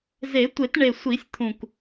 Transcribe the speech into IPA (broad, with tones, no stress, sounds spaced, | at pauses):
z e˨˩˦ tʷ e˨˩˦ t ɳ e˨˩ sʷ i˨˩˦ sʲ t̪ʰ ũ˨˩ k